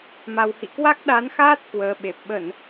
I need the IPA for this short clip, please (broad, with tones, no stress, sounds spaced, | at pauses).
m a˧ w h ḭ˧˨ k w a˦˥ k̚ ɗ a˨˦ n x aː˦˥ t̚ k w əː˨˦ ɓ e˨˩ p̚ ɓ ə˧˩˨ n